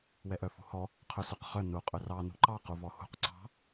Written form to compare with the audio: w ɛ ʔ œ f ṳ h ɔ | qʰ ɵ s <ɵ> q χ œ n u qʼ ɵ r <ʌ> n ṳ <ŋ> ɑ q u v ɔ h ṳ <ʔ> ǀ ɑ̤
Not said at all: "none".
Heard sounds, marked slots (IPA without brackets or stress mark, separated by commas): œ, ɑ, ǃ, q